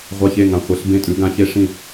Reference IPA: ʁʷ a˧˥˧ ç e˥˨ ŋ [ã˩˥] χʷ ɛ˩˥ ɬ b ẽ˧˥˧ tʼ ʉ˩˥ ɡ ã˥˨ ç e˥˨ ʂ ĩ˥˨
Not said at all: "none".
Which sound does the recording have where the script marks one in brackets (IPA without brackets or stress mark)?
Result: ã˨˩˦